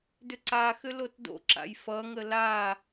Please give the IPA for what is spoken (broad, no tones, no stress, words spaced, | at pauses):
dʏǀaxʏ lotdo̰ǁa̰j fʌŋə la